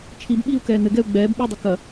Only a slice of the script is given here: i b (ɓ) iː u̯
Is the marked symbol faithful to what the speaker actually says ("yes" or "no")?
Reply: yes